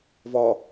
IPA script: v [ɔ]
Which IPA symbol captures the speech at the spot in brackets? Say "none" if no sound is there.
ɔ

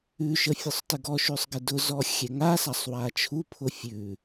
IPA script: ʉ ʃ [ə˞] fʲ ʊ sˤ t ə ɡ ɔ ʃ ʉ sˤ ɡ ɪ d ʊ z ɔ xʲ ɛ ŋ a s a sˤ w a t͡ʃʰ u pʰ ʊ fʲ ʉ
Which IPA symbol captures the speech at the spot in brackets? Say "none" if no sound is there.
ə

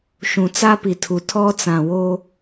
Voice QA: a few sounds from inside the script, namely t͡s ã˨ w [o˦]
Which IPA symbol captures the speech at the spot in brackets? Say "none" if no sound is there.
o˦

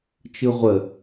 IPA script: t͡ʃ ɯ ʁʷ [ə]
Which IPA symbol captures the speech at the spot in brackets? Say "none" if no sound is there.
ə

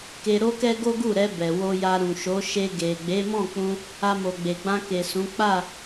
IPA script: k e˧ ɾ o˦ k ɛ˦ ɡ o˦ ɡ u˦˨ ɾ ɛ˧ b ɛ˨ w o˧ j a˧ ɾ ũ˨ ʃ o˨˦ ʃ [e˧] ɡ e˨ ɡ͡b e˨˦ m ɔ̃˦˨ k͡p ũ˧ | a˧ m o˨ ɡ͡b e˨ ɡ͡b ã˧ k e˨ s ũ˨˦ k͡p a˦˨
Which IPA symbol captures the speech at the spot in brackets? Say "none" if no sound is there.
e˧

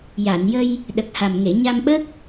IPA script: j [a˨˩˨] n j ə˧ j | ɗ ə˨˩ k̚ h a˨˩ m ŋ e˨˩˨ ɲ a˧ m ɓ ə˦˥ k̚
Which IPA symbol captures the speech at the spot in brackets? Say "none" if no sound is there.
a˨˩˨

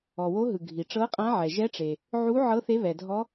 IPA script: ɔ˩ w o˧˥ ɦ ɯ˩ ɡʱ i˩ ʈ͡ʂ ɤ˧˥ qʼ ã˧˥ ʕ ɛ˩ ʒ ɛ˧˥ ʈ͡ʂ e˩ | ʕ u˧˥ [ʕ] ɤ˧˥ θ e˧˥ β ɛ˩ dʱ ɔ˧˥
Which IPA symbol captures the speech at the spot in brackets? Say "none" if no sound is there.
ʕ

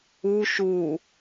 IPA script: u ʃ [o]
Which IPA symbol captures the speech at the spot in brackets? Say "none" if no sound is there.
u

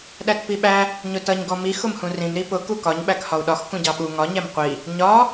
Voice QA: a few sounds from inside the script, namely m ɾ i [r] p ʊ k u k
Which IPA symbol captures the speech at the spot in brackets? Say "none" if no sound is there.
none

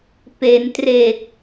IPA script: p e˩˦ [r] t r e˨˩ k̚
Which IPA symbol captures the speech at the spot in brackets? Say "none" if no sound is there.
n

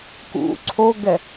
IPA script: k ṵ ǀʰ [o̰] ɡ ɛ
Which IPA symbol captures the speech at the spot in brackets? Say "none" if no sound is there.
o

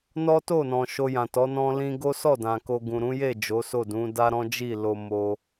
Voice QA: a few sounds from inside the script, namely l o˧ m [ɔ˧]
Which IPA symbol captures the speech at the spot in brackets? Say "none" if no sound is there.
o˧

